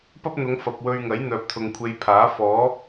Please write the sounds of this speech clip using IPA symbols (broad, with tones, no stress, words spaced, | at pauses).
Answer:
pɐ˥p̚n̪ʊ˨˧ŋ fɐ˨p̚wɵ˧ɥŋɐ˨˥j n̪œː˨p̚t̪ʰʊ˨ŋkʷʰe˨˧jpʰaː˨˥ fɔː˨˥